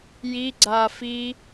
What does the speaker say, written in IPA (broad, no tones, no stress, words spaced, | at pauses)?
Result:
ji ɡ͡ǀa fi